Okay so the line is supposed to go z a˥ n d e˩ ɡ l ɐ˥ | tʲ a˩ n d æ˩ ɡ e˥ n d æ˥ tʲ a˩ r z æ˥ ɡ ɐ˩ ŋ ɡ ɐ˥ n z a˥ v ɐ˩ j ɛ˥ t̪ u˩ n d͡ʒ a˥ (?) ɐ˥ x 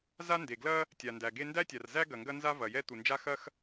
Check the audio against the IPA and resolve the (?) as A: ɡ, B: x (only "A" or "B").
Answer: B